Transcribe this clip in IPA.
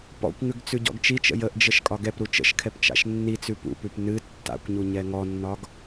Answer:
p ɔ̰ kʷ ŋ ʉ ɡ t͡s ʉ ɟ ɔ̰ ɡ t͡ʃ i t͡ʃ ə̰ j ə ʔ d͡ʒ ə ʃ kʼ ɒ ɡ ɛ p ɾ u t͡ʃ ə̰ ʃ kʰ ɛ p t͡ʃ a̰ ʃ nː i t͡s ʉ p ṵ p ʉ p n ɨ tː a̰ kʷ ɲ u ɲ ɛ ŋ ɔ nː ɒ ɡ

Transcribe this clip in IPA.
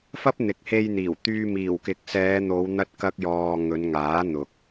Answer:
f ɐ˥ p̚ n̪ ɪ˨ k̚ h e˧ j n̪ iː˨˩ w t̪ yː˧ m iː˨˩ w k ɪ˨ k̚ s ɛː˨˧ n̪ o˨˧ w n̪ ɐ˥ t̚ k ɐ˥ k̚ j ɔː˧ ŋ ɵ˨˧ n ŋ aː˨˥ n̪ ʊ˨ k̚

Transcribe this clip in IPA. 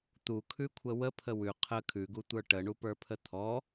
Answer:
t̪ u kʰ ʉ kʷʰ ə w ə pʰ ə w ʉ qʰ ə kʰ ʉ ɡ u tʷ ə˞ ʈ ə ɳ u p ə˞ pʰ ə t̪ʰ ɔ

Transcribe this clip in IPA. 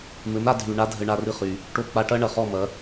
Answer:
m ɘ˩˥ m ɾ a˧ dʱ y˩ ɳ a˥ dʱ ɘ˧ ɳ a˧ r ɨ˧ χ y˩ | ʈ o˧ k͡p a˧ ʈ ɐ˥ ɳ ɐ˩ χ ɔ˥˩ m ɐ˩˥

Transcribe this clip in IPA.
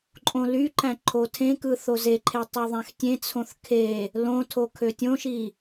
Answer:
ǃʼ õ l y ǃ æ̃ ǃʰ o tʰ ẽ k ɯ θ o z e ǃʰ e tˤ u ðˤ æ̃ x tʲ ẽ t͡sʰ õ θ kʰ e | l õ tʰ o kʰ ø tʲ õ ʃ i

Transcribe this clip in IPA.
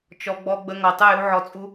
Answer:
t͡ʃ ɔ˧ ɡ͡b ɔ˧ ɡ͡b ə˧ ŋ ɔ˨ tˤ ɯ˦˨ j u˦ ʕ ɔ˧ t͡sʼ u˦

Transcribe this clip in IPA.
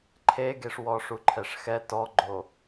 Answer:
ǃʰ e ɡ e ʂ w ɔ ʂ u ǃʰ ɛ ʂ x ɛ t ɔ ɡ͡ǃ o

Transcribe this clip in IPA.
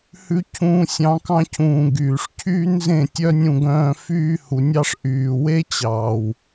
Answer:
h ʉ˧ cʰ ũ˧ sʲ ɑ̃˧ k ɑ̃˧ cʰ ũː˨ ɡ yː˨ ʂ cʰ yː˦ n z ẽ˦˨ tʲ œ˦ nʲ ũ˧ ɡ œ̃ː˧ f yː˦ h u˨˦ nʲ ɑ˦ ʂ ʔ yː˨ w e˦ t͡ɕ ɑː˨ w

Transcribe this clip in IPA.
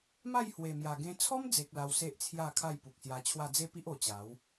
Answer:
m a˥˧ j h w e˨˩ m j a˨˩ ɡ ẽ˧ t͡sʰ ɔ˦ m d͡z e˨ k̚ l a˧ w s e˦ ʔ t͡sʰ j a˥˧ kʰ a˥˧ j p u˨ k̚ s j a˧ t͡ɕʰ w a˥˧ d͡z e˦ p i˦ ʔ o˨˩ t͡ɕ a˨˦ w

